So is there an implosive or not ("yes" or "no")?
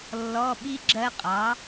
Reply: yes